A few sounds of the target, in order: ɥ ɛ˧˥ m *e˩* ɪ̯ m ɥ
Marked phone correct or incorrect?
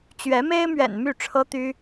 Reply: incorrect: e˥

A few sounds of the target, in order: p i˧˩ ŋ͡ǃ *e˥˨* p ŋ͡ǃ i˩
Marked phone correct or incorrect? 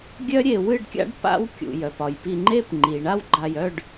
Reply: correct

